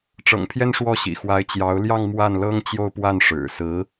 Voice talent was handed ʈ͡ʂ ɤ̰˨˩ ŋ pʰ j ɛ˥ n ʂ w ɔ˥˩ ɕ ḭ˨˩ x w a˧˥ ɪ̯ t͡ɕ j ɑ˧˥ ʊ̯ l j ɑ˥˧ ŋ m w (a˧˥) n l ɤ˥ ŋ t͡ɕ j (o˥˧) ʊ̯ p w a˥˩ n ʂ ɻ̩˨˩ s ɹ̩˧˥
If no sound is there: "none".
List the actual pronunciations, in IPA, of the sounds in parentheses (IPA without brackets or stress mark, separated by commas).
a˥˩, o˥˧